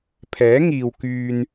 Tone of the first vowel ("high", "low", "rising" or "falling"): rising